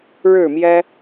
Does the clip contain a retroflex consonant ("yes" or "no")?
yes